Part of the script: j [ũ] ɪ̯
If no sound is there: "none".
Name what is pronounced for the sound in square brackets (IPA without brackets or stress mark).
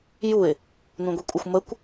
u